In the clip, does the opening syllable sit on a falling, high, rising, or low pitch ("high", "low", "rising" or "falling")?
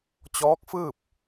rising